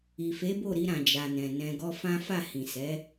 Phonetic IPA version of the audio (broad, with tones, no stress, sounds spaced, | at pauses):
i˨ f e˨˦ b o˦˨ ɾ i˧ ɾ ã˨ d͡ʒ a˨ n ɛ̃˨ n ɛ̃˧ ɡ ɔ˦ f ã˦ f a˦˨ h ĩ˨ s ɛ˨˦